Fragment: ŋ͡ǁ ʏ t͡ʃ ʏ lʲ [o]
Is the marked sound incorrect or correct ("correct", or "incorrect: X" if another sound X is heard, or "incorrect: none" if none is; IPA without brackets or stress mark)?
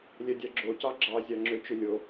correct